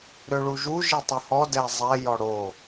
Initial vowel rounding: rounded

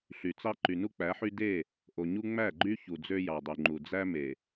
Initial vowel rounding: rounded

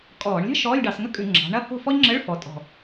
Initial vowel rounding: rounded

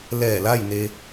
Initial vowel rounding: unrounded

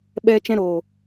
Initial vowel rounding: unrounded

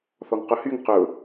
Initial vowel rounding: rounded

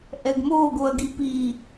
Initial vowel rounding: unrounded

